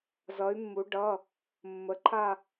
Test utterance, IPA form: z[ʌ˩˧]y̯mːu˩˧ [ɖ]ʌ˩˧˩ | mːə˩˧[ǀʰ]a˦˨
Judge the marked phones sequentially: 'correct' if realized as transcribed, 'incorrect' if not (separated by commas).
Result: correct, correct, incorrect